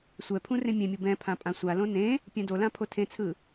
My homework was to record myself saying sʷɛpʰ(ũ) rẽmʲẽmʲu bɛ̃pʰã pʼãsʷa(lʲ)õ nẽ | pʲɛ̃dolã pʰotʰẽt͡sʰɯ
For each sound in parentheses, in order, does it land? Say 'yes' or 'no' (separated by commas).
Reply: yes, no